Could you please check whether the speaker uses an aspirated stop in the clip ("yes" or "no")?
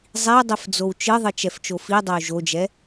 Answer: no